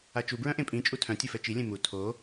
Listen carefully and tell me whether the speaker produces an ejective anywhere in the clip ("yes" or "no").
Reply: yes